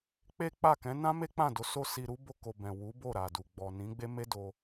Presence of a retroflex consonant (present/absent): absent